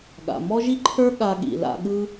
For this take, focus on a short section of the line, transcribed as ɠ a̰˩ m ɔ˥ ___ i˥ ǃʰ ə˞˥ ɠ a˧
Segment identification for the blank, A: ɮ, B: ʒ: B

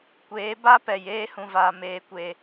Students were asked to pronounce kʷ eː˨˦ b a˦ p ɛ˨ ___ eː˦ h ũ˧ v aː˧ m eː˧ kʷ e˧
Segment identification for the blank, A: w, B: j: B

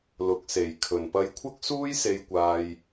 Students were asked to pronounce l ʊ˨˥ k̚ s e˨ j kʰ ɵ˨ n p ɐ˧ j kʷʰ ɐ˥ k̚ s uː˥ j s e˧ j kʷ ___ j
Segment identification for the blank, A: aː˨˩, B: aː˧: B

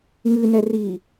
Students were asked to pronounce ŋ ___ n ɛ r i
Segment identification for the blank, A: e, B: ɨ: B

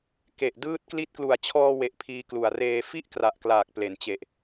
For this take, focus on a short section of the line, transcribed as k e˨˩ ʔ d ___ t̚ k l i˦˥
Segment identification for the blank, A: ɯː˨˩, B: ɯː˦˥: B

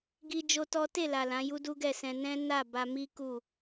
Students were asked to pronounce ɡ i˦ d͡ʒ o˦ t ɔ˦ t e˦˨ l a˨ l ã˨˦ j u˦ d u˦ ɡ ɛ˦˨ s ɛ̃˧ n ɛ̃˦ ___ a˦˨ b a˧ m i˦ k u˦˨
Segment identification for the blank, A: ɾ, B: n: B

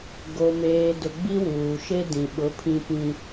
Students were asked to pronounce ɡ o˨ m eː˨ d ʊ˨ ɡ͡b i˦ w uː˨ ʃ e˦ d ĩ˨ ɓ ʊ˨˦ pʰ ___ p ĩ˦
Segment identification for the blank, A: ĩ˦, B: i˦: A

